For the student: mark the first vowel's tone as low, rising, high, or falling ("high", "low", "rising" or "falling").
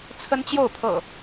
high